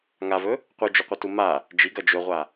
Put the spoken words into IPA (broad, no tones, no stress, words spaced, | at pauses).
ŋavɵ | qʷɨd͡ʒɵqʷɐtu ma | d͡ʒiɡɐ d͡ʒɵʁʷa